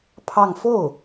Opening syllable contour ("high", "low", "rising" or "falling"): falling